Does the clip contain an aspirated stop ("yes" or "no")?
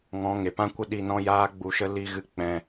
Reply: no